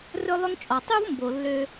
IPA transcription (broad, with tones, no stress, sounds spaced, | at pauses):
r ɵ˥ lˠ ɵ˥ ŋ t͡ʃʼ ɔ˩ tˤ u˥ v m b o˩ lː ø˥